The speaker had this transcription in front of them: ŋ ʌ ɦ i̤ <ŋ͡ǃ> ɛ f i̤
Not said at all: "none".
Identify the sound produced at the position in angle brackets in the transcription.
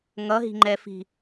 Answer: ŋ͡ǃ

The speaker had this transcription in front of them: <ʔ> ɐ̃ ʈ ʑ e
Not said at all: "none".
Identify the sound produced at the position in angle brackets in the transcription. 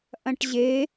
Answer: ʔ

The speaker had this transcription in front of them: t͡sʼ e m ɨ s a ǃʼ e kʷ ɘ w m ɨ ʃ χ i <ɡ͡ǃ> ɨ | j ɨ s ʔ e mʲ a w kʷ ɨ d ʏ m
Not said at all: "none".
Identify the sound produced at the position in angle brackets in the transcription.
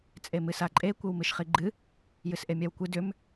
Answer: ɡ͡ǃ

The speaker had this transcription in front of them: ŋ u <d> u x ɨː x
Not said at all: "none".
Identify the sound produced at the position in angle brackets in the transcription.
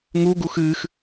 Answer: ɡ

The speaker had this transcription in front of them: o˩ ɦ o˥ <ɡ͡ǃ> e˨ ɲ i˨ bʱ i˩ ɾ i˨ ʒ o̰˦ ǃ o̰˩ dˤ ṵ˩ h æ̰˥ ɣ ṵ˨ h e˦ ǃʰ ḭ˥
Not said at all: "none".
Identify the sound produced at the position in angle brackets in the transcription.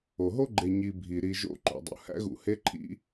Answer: ɡ͡ǃ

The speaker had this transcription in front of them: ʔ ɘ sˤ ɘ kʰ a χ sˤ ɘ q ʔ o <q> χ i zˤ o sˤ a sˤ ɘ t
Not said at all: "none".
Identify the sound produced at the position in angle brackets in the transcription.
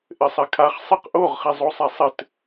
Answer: ʁ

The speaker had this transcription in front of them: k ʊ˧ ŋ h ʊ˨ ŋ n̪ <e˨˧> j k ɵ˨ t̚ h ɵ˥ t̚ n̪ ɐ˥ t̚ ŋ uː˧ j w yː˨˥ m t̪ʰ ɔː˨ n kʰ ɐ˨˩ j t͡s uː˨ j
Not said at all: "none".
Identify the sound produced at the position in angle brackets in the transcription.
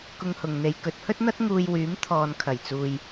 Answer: e˨˧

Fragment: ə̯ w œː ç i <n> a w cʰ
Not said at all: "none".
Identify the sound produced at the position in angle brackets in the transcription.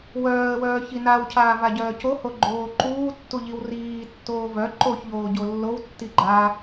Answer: n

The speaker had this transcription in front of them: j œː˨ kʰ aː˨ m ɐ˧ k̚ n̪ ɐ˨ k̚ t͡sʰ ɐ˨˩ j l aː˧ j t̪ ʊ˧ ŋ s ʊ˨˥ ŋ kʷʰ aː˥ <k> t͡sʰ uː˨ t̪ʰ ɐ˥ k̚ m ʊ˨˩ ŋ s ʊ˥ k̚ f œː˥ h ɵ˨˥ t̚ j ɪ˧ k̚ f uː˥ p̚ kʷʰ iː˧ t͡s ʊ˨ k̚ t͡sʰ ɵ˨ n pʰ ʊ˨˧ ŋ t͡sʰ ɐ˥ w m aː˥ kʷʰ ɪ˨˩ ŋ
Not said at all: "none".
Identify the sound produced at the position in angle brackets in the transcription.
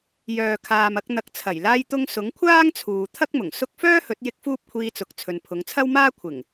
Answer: ŋ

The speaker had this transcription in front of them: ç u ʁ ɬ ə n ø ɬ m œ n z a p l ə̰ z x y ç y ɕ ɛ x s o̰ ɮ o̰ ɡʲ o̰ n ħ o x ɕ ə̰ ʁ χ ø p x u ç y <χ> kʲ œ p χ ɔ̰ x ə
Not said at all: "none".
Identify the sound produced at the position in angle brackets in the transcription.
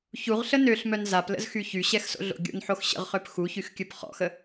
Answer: x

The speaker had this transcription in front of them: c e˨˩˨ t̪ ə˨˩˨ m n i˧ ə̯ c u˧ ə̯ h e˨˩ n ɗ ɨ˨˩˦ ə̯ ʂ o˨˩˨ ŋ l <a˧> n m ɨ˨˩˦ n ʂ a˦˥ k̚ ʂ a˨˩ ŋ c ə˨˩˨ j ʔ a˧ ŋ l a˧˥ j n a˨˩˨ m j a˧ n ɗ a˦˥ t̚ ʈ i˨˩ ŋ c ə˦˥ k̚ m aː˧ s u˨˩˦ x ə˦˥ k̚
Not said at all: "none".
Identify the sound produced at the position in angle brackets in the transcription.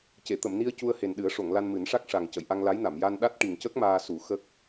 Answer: a˧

